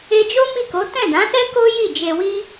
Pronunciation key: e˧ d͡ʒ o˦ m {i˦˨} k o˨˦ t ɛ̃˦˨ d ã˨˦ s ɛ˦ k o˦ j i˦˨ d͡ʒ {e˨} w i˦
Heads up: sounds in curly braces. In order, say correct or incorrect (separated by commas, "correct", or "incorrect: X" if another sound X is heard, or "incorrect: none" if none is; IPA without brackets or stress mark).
correct, incorrect: e˧